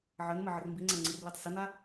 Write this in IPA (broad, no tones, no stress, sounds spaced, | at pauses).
ʕ ə n m ə ʕ ə r m b i ŋ͡ǀ a ŋ͡ǀ ɯ r l i tˤ s ə n a